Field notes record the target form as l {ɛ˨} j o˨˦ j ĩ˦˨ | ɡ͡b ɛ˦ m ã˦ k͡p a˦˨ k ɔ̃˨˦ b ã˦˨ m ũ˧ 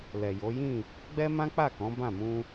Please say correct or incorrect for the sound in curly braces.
correct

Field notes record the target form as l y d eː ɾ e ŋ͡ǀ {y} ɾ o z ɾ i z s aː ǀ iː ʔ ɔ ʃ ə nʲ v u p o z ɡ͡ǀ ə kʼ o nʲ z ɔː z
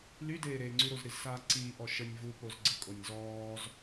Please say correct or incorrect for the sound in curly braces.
correct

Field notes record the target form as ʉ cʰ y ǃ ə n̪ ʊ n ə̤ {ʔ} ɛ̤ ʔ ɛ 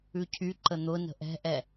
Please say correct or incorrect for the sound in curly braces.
correct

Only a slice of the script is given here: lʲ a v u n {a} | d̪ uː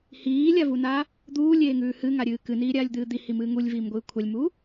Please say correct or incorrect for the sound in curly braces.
correct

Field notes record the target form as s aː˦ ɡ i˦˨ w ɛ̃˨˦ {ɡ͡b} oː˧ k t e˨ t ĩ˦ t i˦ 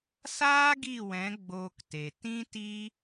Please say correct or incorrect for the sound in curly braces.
correct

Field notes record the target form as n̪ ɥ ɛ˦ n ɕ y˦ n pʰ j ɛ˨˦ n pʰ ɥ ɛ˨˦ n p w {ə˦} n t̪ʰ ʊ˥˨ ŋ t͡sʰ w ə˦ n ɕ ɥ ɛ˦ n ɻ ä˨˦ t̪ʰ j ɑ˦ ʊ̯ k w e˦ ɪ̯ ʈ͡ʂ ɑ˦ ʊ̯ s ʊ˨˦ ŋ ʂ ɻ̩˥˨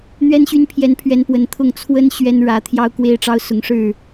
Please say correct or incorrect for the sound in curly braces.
incorrect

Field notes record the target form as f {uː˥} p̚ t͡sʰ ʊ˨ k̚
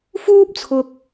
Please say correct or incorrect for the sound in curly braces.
correct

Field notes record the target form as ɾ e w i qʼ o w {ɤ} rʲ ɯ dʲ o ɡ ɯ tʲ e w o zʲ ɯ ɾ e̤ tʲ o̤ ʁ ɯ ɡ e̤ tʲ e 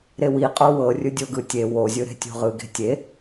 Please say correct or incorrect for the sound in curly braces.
correct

